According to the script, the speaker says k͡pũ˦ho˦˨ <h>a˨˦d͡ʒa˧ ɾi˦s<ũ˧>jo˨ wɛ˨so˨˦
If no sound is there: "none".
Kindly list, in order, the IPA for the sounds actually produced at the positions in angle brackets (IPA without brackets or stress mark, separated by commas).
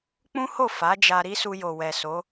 f, u˧